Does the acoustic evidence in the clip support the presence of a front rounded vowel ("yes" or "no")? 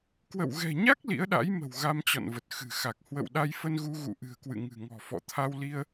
no